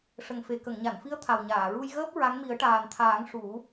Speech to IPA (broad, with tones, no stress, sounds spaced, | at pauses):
ʂ ə˨˩ ŋ f e˨˩ k ə˨˩˨ ŋ ɲ a˨˩˨ n f i˧˥ ə̯ t̪ʰ a˨˩ w ɲ aː˨˩˨ ɹ u˧ j ɣ əː˦˥ p̚ ɹ a˧˥ ŋ m i˨˩˦ ə̯ ʈ aː˨˩ n t̪ʰ aː˨˩˦ ŋ ʂ u˨˩˦